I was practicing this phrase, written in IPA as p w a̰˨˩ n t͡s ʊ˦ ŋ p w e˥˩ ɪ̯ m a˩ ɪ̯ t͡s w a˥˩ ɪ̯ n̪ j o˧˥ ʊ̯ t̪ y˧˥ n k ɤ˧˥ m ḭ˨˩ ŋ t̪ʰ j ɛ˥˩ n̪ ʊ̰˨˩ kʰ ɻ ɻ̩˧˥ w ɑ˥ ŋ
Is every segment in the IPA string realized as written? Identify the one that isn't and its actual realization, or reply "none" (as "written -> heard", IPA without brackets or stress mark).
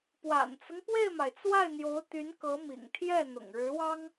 kʰ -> ŋ